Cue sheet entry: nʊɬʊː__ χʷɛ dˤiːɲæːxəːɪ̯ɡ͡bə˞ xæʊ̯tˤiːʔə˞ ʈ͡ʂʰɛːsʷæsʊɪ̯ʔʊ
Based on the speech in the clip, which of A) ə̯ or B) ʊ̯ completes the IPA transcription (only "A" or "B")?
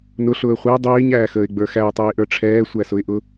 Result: A